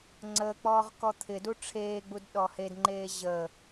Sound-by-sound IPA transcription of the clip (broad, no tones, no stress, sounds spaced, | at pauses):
ŋ͡ǀ əː k͡p ɔː ʁ k ɔ t̪ʰ ɪ d u ʈ͡ʂʰ eː ɡ͡b u d ɗ ɔ h e d ŋ͡ǃ eː ʑ ə